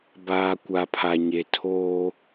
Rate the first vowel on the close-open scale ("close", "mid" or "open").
open